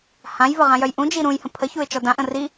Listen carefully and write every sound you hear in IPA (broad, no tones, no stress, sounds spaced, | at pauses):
h ã j v ə ʁ ã j œ j ʔ ũ d͡ʒ i ɾ ũ j h ə̃ pʰ ə ç u ɪ̯ t͡ʃ ɔ d ã ʔ ə̃ r i